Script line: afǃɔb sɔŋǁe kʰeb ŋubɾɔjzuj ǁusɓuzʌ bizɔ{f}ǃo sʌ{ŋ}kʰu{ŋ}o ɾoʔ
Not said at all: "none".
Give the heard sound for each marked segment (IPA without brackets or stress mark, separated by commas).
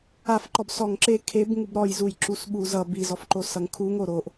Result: f, ŋ, ŋ